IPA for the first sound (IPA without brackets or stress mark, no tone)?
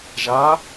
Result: ʒ